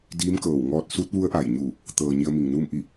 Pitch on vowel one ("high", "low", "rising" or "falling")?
rising